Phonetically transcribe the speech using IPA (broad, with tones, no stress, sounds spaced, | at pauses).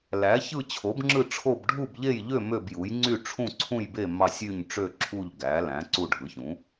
l æ˩˥ ç ɯ˦˨ t͡ɕʰ o˩˥ b ŋ͡ǁ ɯ˦˨ ʈ͡ʂʰ o˦˨ b ɖʱ u˦˨ b ʎ e˦˨ j ʎ ø˦˨ m ø˦˨ b j u˩˥ j ŋ͡ǀ y˦˨ ʈ͡ʂʰ ũ˦˨ ǀʰ ũ˦˨ j b e˦˨ m ɑ˦˨ sʲ y˦˨ ɲ ʈ͡ʂ ø˦˨ ǁʰ u˦˨ ʎ ɡ æ˩˥ l æ̃˩˥ ǀ u˦˨ ɖʱ ɯ˩˥ ç ũ˩˥